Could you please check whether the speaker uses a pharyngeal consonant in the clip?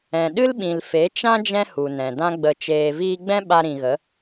no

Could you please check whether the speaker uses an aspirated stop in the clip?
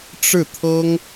yes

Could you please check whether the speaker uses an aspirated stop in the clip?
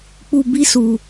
no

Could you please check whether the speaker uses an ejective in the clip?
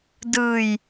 no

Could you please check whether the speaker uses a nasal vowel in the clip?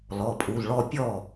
no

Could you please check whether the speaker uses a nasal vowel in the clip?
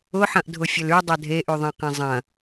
yes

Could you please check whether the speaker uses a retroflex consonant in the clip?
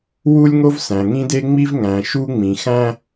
no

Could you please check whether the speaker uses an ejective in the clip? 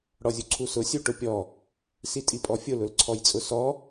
yes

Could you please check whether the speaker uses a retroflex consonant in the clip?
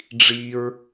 yes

